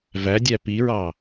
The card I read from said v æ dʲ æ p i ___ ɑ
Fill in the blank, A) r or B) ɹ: B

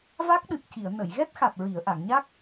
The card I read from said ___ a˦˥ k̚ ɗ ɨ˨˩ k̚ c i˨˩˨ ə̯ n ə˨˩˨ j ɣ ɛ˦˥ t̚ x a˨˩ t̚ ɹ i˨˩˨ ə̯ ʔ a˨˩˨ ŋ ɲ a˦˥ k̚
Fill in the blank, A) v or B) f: A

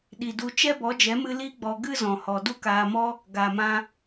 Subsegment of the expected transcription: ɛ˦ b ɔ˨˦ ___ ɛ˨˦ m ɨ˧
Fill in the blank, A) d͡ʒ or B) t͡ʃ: A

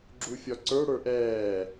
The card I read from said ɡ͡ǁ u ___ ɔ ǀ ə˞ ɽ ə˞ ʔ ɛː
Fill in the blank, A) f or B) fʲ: B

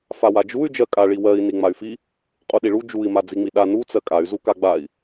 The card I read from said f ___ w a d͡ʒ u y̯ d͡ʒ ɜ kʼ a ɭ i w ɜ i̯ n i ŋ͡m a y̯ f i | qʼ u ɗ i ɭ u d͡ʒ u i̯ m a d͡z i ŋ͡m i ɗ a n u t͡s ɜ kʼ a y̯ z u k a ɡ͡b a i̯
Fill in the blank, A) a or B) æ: A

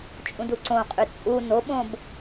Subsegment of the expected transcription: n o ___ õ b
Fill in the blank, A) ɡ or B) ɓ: B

